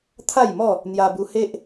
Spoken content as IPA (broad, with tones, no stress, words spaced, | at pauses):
t̪ʰa˥˧jmɔ˥˧ | n̪ja˧bu˧ he˦ʔ